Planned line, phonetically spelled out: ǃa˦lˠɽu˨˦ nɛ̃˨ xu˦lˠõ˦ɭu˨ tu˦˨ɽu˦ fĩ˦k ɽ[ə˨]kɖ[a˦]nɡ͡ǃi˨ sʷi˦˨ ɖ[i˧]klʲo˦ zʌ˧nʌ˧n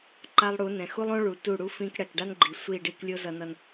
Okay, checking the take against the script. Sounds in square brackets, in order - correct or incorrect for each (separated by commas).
incorrect, correct, correct